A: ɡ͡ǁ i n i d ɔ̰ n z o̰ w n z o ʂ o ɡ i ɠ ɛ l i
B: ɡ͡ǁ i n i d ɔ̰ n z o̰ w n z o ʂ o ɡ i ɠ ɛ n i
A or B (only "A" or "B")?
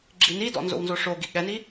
B